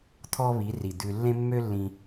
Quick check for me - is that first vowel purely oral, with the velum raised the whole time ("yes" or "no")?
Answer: yes